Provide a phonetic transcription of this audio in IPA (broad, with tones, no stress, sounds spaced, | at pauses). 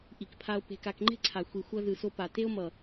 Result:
ʔ i˨ k pʰ a˧ o̯ p e̤˧ k a˧ k ŋ͡ǃ e̤˦ ǀʰ a˨ xʷ i˨ xʷ ʌ˧ z ɯ˨ s o˧ p a˨ t e˦ o̯ m ʌ˨